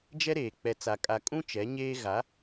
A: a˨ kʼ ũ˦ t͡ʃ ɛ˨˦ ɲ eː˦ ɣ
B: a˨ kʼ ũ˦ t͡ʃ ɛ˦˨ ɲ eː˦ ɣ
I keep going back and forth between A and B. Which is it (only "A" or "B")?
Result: A